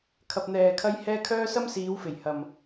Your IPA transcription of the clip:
kʰ ɐ˨ p̚ n̪ ɛː˨ kʰ ɐ˧ j h ɛː˧ kʰ œː˥ s ɐ˥ m s iː˨˧ w f e˨˩ j h ɐ˨ m

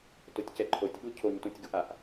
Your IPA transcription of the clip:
t o tʲ c ɛ ǃʰ o tʲ ɓ u cʰ o ɲ t ũ tʲ ɡ u ʔ a ʔ

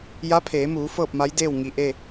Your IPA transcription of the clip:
j a˧˥ pʰ eː˩˧ m uː˩˧ f ɤː˥˨ p̚ m a˧˥ j d eː˥˨ w ŋ i˧˩ ʔ e˥˨

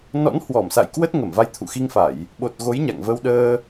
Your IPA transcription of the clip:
n ɔ̰˧˥ n h w ɔ˧˩ m s a̰˧˨ j k w ə˦˥ t̚ ŋ ə˧˩ m v a˧ j t̪ʰ ṵ˧˨ x i˧ ŋ f a˧˩˨ j | ɓ o˨˩ t̚ ɣ o˨˦ j ɲ a̰˧˨ ŋ v ə˧ w ɗ əː˧

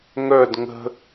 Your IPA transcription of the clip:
ŋ œ d ŋ ə̤

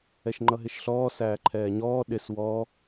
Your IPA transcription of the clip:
ɛ ʃ ŋ͡ǃ ʌ ɦ ɪ ʃ ɬ ɔː s æː ǃʰ ɛː ɲ ɔː ɗ ɪ s w ɔ

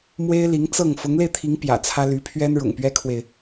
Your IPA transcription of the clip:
m w e˥ ɪ̯ l i˧˥ ŋ t͡s ɤ˥˩ ŋ f ʊ˧˥ ŋ l e˧ ɪ̯ t̪ʰ i˧˥ ŋ p j ä̰˨˩ t͡sʰ ä˥ l y˧˥ pʰ ɥ ɛ˥ n ɻ ʊ̰˨˩ ŋ p ɥ ɛ˥ kʰ w e˨ ɪ̯

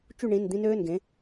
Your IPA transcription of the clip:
t͡ʃ u˥˨ ɳ ĩ˩˧˩ n d̪ ĩ˦ n øː˩˧˩ n ɡ ẽ˩˧

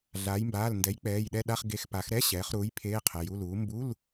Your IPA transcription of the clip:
ɮ aː˩˧ j m b aː˩˧˩ l n d ɛ˩˥ j k͡p ɛː˩˧˩ j ɗ ɛ˦˨ ɗ a˧˥˧ χ ɡ e˩˧˩ x p a˩˧ x ɾ ɛ˧˥˧ ɕ ɛː˩˧ χ ɾ uː˩˥ j pʰ eː˧˥˧ qʰ ɛ˩˧˩ j u˧˥˧ l uː˩˥ m b u˧˥˧ l

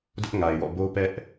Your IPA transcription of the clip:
d ʊ˦ ʔ ŋ a˨ ɪ̯ w ɔ̰˦˨ b o˦ p ɛ˦ ʔ

